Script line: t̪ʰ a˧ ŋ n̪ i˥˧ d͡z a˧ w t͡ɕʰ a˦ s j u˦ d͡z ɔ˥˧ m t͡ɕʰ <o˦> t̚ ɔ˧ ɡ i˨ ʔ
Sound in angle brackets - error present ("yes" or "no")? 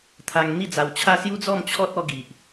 yes